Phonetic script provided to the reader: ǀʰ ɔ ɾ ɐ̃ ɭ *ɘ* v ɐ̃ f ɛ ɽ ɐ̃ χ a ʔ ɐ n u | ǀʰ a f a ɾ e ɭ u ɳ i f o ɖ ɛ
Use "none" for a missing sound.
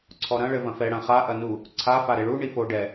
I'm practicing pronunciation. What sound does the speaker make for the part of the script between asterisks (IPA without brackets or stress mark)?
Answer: ɘ